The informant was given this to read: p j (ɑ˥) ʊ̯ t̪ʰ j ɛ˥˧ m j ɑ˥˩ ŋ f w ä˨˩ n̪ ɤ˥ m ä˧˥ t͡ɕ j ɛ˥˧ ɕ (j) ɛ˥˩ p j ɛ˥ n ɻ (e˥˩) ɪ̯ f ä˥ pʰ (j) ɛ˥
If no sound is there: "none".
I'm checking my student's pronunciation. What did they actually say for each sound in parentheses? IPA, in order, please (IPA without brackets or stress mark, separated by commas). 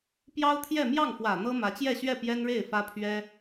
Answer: ɑ˥, ɥ, e˥˩, ɥ